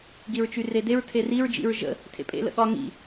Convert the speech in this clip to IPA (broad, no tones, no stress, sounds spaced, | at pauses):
ɡ i ɹ t͡ʃ y r e d e ɹ tʰ e r i ɹ d͡ʒ ḭ ɹ ʒ ə̰ | tʰ ḛ pʼ ḛ l ə̰ ɠ ɒ ŋ ḭ